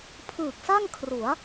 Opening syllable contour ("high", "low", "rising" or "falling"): low